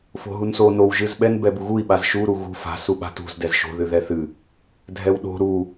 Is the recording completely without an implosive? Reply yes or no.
no